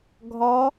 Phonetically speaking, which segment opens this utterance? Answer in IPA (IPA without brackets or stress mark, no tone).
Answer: ɡʱ